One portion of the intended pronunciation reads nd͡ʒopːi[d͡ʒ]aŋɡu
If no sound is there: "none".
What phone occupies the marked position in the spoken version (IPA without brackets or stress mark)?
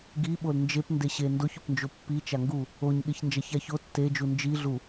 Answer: t͡ʃ